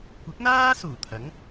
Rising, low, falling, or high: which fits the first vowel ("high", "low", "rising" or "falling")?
rising